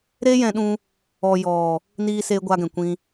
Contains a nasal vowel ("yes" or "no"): yes